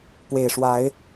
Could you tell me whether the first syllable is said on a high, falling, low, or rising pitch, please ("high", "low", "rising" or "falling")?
low